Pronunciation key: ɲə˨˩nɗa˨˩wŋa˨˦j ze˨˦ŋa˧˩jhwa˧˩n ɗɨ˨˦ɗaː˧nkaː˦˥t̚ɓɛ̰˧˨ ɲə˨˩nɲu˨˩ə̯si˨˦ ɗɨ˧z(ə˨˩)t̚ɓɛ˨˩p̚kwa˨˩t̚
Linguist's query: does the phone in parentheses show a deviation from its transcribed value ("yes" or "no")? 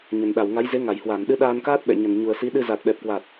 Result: yes